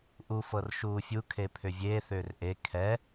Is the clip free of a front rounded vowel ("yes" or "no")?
no